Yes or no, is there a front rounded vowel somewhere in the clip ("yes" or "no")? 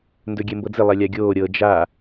no